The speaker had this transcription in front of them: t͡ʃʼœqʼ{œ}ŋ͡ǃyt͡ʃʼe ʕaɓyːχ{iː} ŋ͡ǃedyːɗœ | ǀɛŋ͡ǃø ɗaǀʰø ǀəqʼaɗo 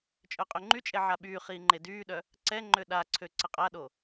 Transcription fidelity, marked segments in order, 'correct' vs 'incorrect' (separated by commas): incorrect, correct